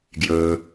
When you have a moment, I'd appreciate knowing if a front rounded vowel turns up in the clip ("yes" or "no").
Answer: no